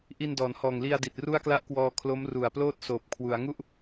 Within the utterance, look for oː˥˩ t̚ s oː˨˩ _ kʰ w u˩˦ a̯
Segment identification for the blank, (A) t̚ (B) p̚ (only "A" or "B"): B